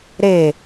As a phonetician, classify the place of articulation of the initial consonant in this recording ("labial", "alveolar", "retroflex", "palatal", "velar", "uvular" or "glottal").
alveolar